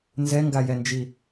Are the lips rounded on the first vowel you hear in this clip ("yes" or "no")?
no